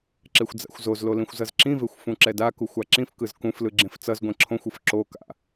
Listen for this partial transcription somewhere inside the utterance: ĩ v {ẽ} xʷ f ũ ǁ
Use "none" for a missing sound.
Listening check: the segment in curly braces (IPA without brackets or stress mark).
e